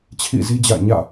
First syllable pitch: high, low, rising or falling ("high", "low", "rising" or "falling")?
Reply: falling